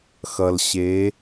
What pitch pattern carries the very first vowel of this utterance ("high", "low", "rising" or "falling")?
low